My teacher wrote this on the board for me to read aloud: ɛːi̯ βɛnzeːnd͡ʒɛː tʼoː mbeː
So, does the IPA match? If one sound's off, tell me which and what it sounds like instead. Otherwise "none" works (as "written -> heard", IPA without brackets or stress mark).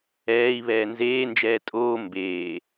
ɛ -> ɛː